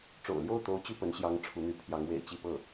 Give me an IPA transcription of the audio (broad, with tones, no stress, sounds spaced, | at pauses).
ʈ͡ʂ o̰˨˩ ʊ̯ l j o˥˩ ʊ̯ t̪ o˧˥ ʊ̯ t͡ɕ y˥˩ p ə˧˥ n ɕ j ɑ˧˥ ŋ ʈ͡ʂʰ u˧˥ n̪ y˧˥ pʰ j ɑ˧˥ ŋ w ḛ˨˩ ɪ̯ t͡ɕ i˥˧ p ɤ˥˩